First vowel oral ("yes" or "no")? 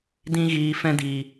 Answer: no